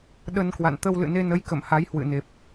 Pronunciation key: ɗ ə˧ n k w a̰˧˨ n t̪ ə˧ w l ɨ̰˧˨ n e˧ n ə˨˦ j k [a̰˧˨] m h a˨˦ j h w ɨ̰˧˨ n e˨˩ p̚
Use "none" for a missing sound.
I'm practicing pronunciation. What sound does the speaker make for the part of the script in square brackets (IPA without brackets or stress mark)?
ə̰˧˨